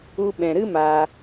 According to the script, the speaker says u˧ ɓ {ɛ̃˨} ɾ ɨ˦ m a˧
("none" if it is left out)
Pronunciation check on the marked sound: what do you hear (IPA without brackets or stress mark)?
ɛ̃˨